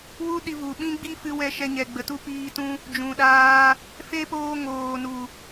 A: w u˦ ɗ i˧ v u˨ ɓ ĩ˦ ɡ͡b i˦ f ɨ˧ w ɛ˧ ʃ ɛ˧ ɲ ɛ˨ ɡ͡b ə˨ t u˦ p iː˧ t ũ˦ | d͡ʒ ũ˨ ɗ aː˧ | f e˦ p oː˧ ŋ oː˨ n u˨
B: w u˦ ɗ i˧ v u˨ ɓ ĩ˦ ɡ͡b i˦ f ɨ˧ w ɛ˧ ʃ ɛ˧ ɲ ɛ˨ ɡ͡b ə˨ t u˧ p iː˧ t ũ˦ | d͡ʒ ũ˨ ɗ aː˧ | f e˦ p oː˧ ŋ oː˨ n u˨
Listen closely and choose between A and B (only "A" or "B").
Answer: A